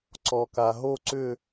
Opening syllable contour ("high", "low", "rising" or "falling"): low